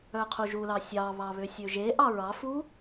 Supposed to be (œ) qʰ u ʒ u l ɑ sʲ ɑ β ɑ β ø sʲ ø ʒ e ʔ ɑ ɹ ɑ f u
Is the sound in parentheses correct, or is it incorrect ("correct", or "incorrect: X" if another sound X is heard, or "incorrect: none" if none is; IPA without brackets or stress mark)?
correct